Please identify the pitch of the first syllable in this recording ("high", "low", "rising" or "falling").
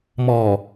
low